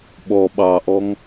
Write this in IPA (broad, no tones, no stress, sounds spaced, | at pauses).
ɓ ɔ ɓ ɑ ʔ ɔ ŋ